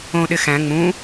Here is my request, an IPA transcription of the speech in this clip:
õ ɗ ɪ x æ̃ ŋ͡m ũ

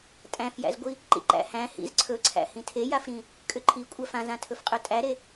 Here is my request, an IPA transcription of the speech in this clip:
tʼ æ̃ f j æ̰ z ɡʷ i | ǃ ḭ ǃ æ̰ h æ̃ h ḭ z ǀʰ ɵ ǀʰ æ̰ h ĩ tʰ e j a f ɾ ĩ | kʼ ʏ ǃʰ i kʷʼ æ f ã z ã tʰ ɵ f qʼ ɵ tʼ æ ɾ e

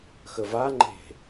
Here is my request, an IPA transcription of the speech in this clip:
x ə v a ŋ͡ǃ e̤

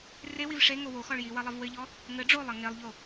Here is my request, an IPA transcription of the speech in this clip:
r e w i v ʂ e ŋ o w o x ɔ ɭ j i w ɐ lˠ ɐ v w ɘ ʎ ɔ | ŋ ɘ ɖ͡ʐ o lˠ ɐ ŋ e lˠ ʎ o

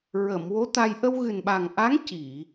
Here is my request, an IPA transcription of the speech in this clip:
ɹ ə˨˩˨ m w o˧˥ t̪ a˧ j ʔ ə˧ w ɣ ɨ˨˩ n ɓ a˨˩ ŋ ʔ a˧˥ ŋ c i˨˩˨

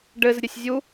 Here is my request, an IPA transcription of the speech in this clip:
ɖ ɘ z ɾʲ ɘ sʲ zʲ u

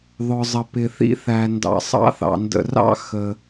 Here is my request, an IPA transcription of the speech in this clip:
ðˤ ʊ˩ zˤ ə˩ p ɪ˩ θ ḭ˥ θ æ˩ n d ɑ̰˩ sˤ ɑ̰˥ θ ɑ̰˩ n d ə̰˩ r ɑ̰˥ x ə˩

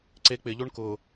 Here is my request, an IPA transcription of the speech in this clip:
ǀ e k͡p ɪ ʎ o ɳ k ʊ

